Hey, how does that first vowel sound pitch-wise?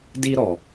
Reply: high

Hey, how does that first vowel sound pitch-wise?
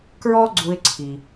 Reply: high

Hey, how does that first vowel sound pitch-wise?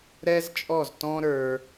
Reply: high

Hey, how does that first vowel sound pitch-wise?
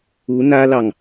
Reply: rising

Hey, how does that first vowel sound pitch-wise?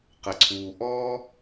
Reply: low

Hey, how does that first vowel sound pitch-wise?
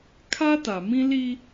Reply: high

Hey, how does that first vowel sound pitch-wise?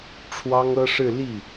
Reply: high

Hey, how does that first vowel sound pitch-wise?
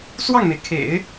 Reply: falling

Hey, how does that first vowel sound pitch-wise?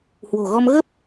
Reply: low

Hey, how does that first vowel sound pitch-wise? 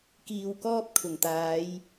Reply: low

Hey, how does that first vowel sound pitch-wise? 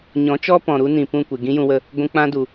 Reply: rising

